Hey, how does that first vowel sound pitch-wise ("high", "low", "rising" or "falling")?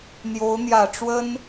rising